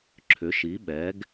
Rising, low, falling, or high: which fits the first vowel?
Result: rising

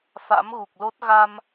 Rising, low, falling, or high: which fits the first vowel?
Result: rising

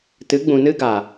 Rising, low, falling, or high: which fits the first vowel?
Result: rising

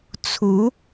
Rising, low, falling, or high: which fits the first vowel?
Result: rising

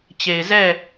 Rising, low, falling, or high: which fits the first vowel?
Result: low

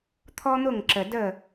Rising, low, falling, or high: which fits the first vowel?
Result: high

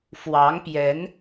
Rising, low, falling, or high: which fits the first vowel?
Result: rising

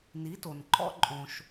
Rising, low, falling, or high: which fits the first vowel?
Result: rising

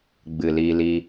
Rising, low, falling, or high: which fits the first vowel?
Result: low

